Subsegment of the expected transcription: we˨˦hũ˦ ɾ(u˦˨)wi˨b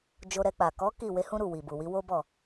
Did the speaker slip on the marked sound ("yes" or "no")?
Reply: no